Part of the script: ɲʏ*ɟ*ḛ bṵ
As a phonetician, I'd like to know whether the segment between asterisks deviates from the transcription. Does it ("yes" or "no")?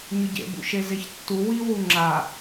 no